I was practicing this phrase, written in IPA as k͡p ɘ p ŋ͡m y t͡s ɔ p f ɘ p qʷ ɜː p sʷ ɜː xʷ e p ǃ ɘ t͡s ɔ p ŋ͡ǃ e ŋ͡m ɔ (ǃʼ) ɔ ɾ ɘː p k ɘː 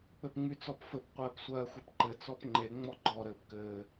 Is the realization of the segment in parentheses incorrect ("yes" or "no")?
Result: yes